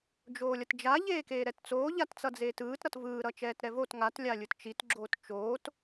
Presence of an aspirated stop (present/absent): absent